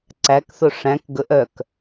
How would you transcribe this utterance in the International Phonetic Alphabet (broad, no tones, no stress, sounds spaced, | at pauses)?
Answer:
ǀ æ k θ o ʂ æ̃ k ɡ ɵ ʔ œ k